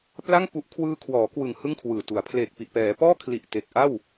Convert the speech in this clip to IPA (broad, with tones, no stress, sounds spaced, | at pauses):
p l a˥˩ ŋ p u˦˥ ʔ kʰ w ɯː˧ kʰ w ɔː˩˦ k w ɯ˨˩ ŋ h ɯ˥˩ ŋ kʰ w ɯː˨˩ t u˩˦ a̯ pʰ l eː˨˩ k̚ p i˨˩ ʔ p ɛː˩˦ p ɔː˥˩ kʰ l i˨˩ ʔ t e˨˩ k̚ ʔ a˥˩ w